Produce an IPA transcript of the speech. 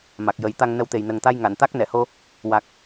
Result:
m a˨˩ k̚ j ə˨˩˦ j t̪ a˧ ŋ n ə˧˥ w t̪ e˨˩ j n ə˨˩ ŋ t̪ a˧ j ŋ a˨˩˨ n t̪ a˦˥ k̚ n ɛ˨˩˨ h o˧ | w a˨˩ k̚

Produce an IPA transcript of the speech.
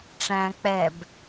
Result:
ʈ͡ʂ æ̃ k͡p ɛ b

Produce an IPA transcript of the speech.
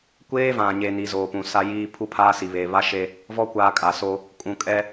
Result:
kʷ eː˦ v ã˨ ɲ e˨ n i˨ z oː˨ p ũ˨ s a˦ j iː˦ pʰ u˦ pʰ aː˦ s i˨ β e˨ β a˦ ʃ e˦ | v ɔ˦ kʷ aː˦ kʼ a˨ s o˦ | kʼ ũ˨ kʼ ɛ˦

